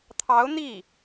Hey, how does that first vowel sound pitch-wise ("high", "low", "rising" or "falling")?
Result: rising